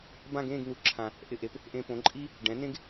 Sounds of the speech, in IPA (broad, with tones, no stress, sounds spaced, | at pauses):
b ã˥˧ ɡ ẽː˥˧ ɡ n̪ u˨˩˦ ǁʰ ã˨˩˦ | ʔ ɪ˧ ʔ e˩˥ p | ʔ ẽ˧ p õ˩˥ ǃʼ i˥ | ɖ ɛ̃˩˥ n ẽ˥ ɡ